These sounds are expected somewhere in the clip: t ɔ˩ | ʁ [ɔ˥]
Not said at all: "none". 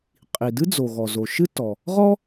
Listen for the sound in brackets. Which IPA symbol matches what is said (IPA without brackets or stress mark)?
ɔ˥